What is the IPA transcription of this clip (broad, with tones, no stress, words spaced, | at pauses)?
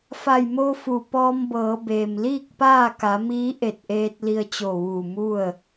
fa˧˩jmo˧fu˩ pɔː˧mbɤː˩˧beː˩m liː˥˨k̚paː˥˨ka˩˧miː˧˥ ʔe˧˩t̚ʔeː˧t̚ li˧ə̯t͡ɕo˧˩ʋuː˧˩ mu˥˨ə̯